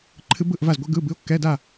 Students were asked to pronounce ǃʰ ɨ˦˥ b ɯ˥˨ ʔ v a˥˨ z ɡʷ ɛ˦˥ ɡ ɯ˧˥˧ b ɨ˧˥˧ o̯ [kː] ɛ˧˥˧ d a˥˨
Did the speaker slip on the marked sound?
no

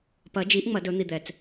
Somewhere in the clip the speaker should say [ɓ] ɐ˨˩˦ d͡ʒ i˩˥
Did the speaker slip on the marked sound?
yes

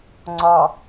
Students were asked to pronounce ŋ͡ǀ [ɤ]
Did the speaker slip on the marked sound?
yes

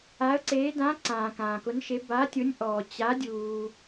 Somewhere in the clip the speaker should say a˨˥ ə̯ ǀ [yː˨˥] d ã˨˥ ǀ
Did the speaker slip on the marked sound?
yes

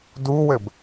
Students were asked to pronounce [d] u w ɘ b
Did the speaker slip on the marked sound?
no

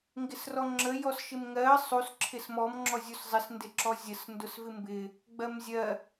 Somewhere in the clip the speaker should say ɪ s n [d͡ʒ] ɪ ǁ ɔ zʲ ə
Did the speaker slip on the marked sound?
yes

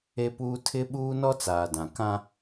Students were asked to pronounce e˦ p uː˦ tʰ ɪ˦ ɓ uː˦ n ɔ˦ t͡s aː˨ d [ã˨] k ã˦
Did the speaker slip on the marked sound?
no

